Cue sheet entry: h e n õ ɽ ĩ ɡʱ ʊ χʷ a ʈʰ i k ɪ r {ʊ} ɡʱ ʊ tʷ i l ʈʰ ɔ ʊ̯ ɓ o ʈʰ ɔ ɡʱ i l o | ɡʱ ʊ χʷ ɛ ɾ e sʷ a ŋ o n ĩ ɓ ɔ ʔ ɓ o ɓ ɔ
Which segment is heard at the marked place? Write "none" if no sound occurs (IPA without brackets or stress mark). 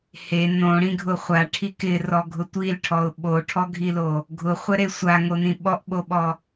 ɔ